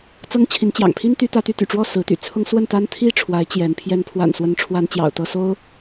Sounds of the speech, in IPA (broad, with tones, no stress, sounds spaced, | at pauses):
t͡s ɤ˦ ŋ t͡ɕʰ i˨˦ n t͡ɕ j ɑ̰˨˩ ŋ pʰ i˦ n t̪ y˨˦ t̪ ä˨˦ t̪ y˨˦ t̪ y̰˨˩ ʈ͡ʂ w ɔ˥˨ s ɹ̩˨˦ t̪ y̰˨˩ t͡sʰ ʊ˦ ŋ s w ə˥˨ n t̪ a˦ n t̪ʰ i˥˨ ʈ͡ʂʰ w a˨˦ ɪ̯ t͡ɕ j ɛ˨˦ n pʰ j ɛ˨˦ n pʰ w a̰˨˩ n s w ə˨˦ n ʈ͡ʂʰ w a˨˦ n t͡ɕ j ɑ̰˨˩ ʊ̯ t̪ ɤ˥˨ s o˦ ʊ̯